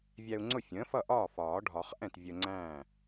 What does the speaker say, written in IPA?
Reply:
vʲ æ˧ u̯ ŋ͡ǀ ʊ˥˩ fʲ ə̃ː˩˥ f ʌ˥˩ ʔ ɒː˥˩ f ɒː˨˩˦ ɖʱ ɒ˨˩˦ χ ʔ ɛ̃˥˩ t vʲ ə˧ ŋ͡ǀ æ̃ː˥˩

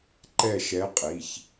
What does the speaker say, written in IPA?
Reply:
ǃ ɛ˥˧ ʃ ɛ˧˥ qʼ i˩˧˩ ç

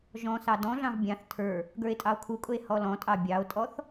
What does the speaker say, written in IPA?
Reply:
ʒ ɔ̃ s ɑ d ɔ̃ ɮ ɑ̃ v bʲ ɑ̃ θ tʰ ə˞ | ɡ ə˞ e̯ tʼ ɑ o̯ kʰ u kʼ ʊ e̯ h ɔ l ɔ̃ tʼ ɑ bʲ ɑ o̯ tʼ ɔ θ

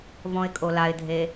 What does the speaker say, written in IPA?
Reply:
v ɔ̃ ɪ̯ kʼ o l a ɪ̯ dʱ e

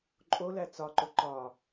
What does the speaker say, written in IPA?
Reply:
ǃʼ o l æ t͡s ɒ ǃ o ǃ ɒ

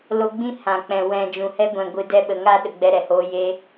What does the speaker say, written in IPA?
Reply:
l o˧ ɡ͡b ĩ˦ h ã˨ k͡p ɛ̃˨ w ɛ̃˨ d͡ʒ ũ˨ h ɛ˦ ɡʷ ɛ̃˨ ɡʷ ɨ˨ d ɛ˧ ɓ ə˨ ŋ a˦ ɗ ə˨ ɡ͡b ɛ˧ ɾ ɛ˨ h oː˧ j e˧

